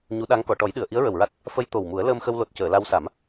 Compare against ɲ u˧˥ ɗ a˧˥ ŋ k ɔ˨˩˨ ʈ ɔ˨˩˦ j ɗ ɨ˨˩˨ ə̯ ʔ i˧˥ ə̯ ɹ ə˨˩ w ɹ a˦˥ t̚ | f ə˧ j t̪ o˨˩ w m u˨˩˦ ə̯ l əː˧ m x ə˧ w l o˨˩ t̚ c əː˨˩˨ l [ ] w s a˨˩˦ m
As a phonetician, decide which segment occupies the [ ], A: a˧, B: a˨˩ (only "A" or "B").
A